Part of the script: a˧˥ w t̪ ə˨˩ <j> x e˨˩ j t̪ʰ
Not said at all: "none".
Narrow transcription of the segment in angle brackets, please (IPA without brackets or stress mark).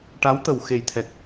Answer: w